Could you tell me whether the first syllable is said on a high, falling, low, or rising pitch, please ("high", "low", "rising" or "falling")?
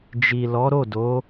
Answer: low